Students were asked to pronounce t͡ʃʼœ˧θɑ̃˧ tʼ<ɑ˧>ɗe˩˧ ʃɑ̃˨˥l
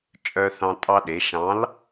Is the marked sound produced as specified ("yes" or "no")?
yes